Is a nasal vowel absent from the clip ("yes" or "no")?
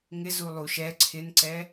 yes